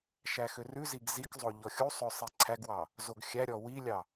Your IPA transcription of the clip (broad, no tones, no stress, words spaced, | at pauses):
ʃæxørʉziɡ zikzˤo ʎɔxʲusˤø sˤiǀʰæɡwɑ | zoɡxʲæɾʲɔ wilʲɑ